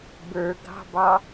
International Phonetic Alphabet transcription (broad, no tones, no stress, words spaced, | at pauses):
bə˞ɡɑ̤bɑ